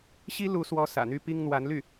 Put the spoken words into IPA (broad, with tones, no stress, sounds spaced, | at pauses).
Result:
ɕ i˥ l u˧˥ s w ɔ˧˥ s ä̰˨˩ n̪ y˥ p i˥ ŋ n̪ w a˧˥ n l y˥˩